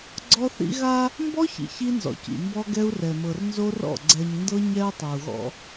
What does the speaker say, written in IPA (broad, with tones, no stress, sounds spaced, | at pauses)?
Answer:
ɡ͡ǀ ɔ˦ θ ḭ˦ ɣ a˦ | m b ɔ˦ ç ḭ˨ ç i˦ n z ɔ̰˨ c ḭ˨ m b ɔ˦ ɡ ɛ˦ u̯ r ɛ˨ m ɤ˨ r n z o˦ r ɔ̰˦˨ ɡ͡ǀ ɛ˨ ɲ n d ɤ˦ ɲ ɛ˦ u̯ tˤ ɤ˨ u̯ ɣ ɔ̰˦